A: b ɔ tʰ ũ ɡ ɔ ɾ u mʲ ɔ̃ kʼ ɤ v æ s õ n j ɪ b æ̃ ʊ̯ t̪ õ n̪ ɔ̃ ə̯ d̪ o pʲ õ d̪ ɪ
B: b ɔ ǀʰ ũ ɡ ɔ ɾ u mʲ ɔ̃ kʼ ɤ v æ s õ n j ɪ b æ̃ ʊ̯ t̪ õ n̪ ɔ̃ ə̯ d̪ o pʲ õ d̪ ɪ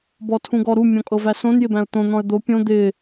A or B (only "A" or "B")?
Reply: A